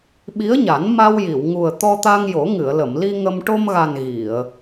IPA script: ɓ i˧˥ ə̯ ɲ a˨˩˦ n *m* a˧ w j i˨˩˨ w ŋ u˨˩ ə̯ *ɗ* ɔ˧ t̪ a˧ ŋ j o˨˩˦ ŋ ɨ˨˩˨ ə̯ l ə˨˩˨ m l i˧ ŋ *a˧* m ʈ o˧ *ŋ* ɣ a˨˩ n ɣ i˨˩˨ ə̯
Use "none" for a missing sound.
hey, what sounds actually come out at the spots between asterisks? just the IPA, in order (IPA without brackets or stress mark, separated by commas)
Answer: m, t̪, ə˧, m